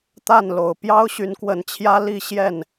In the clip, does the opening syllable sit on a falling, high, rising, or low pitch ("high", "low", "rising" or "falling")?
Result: falling